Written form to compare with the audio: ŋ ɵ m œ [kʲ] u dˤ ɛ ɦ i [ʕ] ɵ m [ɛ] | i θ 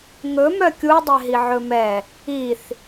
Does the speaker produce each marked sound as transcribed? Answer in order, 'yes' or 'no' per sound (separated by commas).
yes, yes, yes